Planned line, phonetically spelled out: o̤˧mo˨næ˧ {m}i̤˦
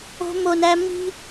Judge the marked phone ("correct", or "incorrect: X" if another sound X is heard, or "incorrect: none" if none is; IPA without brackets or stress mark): correct